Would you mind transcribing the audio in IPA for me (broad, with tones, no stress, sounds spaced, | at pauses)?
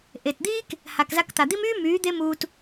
ʔ e˨ t d̪ iː˦ k | h a˨ k z a˧ k t̪ a˨ d̪ i˦ m yː˦ m yː˨˦ d̪ e˦ m uː˧ t